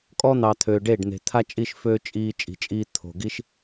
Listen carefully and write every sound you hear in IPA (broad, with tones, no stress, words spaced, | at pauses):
kʼɔ˦ n̪ɑ˨ t̪ʰøː˨ɖeː˦˨ɖn̪e̤˨t̪ʰa˦ t͡ʃʼi˦˨ʃføː˧ t͡ʃʼiː˧ t͡ʃʼi̤˨t͡ʃʼiː˧ t̪ʰo̤˨ ɡi˦ʃ